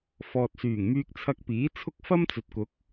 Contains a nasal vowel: no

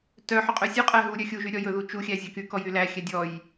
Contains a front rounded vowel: yes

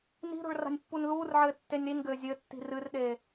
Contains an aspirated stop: no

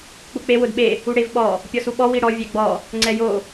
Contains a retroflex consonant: yes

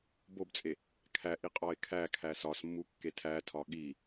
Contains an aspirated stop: yes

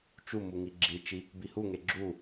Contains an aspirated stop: no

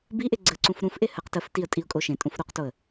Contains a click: yes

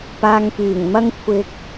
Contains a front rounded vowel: yes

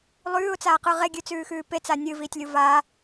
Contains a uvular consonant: yes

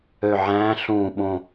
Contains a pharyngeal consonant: yes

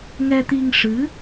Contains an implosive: no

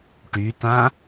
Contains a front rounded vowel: yes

